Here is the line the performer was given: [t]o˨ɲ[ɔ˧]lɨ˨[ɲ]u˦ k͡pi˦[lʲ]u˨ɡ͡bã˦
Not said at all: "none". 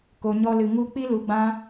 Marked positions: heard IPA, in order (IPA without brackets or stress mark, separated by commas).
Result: k, ɔ˧, ŋ, l